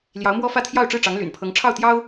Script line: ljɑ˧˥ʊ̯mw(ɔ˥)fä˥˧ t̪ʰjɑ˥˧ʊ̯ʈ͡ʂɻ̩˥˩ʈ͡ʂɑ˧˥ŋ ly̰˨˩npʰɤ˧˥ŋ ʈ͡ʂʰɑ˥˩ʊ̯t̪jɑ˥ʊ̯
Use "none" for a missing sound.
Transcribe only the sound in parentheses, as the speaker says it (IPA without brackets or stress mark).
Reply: ɔ˥